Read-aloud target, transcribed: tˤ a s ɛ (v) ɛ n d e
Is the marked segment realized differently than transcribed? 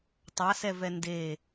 no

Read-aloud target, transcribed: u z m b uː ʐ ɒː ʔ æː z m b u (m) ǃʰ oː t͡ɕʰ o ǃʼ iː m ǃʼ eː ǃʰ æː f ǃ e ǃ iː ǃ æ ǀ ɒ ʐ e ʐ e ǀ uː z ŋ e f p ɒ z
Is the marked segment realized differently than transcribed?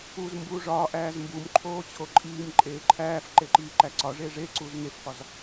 no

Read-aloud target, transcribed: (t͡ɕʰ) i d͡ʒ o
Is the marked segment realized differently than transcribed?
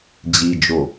yes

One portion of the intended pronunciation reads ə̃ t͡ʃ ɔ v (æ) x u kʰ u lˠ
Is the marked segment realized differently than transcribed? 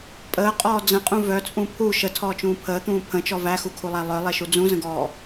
no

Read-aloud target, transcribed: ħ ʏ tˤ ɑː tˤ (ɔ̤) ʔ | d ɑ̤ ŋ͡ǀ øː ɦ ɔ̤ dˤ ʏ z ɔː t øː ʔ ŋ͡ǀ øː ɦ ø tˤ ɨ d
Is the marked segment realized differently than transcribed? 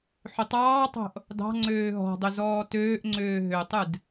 yes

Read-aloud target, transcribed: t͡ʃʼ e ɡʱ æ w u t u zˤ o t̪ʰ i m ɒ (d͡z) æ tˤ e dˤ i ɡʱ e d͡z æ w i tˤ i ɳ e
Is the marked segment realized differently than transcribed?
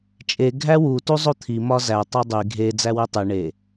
yes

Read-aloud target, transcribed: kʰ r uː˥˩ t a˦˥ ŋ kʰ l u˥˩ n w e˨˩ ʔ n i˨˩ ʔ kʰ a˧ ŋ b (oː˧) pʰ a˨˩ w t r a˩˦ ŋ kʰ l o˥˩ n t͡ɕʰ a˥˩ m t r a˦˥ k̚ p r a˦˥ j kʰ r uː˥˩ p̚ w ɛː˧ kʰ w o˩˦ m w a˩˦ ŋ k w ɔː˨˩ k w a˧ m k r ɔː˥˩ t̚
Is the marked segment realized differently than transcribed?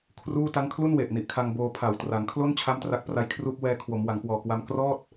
no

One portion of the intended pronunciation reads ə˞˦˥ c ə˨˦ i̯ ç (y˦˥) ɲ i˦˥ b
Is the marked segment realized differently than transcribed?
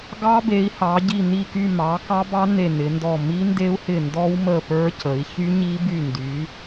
no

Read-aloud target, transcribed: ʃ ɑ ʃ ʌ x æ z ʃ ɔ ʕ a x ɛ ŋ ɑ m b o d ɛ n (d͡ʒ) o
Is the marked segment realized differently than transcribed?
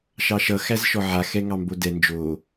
no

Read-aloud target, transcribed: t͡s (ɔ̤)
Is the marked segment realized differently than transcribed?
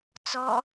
yes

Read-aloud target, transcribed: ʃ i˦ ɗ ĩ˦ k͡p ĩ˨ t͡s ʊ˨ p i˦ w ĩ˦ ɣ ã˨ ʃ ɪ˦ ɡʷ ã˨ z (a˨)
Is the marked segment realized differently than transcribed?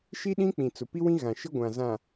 yes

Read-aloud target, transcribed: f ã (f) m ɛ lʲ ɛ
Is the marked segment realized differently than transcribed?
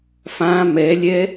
yes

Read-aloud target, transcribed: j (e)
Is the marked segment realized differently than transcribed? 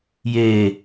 yes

